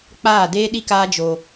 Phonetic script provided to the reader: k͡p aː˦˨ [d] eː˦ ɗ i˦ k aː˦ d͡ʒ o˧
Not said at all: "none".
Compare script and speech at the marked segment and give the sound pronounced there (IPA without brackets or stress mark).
d